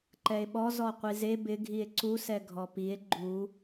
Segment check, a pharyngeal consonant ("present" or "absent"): absent